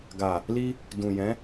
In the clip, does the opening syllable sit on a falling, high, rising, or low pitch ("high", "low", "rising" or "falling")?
low